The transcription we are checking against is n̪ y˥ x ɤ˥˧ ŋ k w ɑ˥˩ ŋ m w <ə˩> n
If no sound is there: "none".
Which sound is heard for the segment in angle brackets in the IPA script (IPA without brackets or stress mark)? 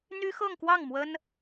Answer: ə˥